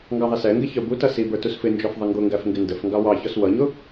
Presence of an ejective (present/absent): absent